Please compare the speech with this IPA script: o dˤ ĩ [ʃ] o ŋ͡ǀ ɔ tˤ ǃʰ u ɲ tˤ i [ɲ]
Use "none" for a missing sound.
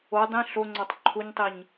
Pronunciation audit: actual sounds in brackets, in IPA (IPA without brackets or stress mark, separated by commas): ɬ, ɲ